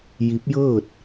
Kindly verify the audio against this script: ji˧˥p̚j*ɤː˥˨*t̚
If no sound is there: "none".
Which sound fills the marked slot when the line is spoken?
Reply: ɤː˥˨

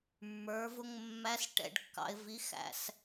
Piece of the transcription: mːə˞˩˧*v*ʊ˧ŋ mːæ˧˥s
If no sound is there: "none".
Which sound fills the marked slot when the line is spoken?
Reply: v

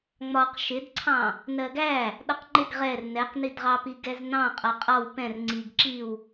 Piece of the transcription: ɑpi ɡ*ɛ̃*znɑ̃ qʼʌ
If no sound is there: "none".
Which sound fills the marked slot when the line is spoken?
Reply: ɛ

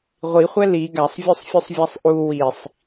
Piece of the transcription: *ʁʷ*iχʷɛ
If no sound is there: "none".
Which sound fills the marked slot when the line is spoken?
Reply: ʁʷ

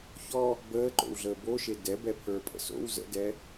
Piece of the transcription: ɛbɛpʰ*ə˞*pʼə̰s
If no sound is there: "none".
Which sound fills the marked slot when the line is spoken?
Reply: ə˞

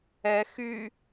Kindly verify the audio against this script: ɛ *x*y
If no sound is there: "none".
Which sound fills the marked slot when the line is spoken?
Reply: x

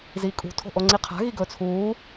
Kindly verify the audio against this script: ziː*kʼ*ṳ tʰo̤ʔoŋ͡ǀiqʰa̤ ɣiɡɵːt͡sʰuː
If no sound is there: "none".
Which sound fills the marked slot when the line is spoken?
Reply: kʼ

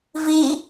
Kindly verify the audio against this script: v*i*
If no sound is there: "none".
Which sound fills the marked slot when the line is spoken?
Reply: i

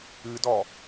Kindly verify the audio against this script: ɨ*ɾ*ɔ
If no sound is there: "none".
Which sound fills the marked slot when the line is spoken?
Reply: d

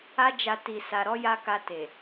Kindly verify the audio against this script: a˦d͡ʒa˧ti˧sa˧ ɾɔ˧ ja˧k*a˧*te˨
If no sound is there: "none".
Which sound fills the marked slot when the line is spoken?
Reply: a˧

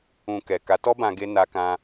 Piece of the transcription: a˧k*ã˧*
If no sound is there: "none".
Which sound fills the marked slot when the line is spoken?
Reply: ã˧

